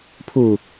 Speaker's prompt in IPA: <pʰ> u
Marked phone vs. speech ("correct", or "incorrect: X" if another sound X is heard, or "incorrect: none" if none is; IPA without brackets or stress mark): correct